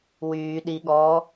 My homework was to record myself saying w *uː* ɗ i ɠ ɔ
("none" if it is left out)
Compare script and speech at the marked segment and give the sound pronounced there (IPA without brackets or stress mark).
yː